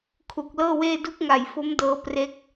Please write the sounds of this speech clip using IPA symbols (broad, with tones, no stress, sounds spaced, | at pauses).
kʰ u˨˩ k̚ l ɤː˥˩ w eː˥˩ d u˦˥ k̚ ŋ a˨˩ j f o˦˥ m d ɤː˦˥ p r e˥˩ k̚